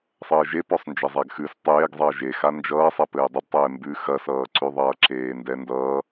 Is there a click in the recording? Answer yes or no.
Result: yes